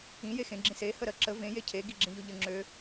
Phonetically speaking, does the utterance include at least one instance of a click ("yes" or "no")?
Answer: yes